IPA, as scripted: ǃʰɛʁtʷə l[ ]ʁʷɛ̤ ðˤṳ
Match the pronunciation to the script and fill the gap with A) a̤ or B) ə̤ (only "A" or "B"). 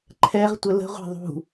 B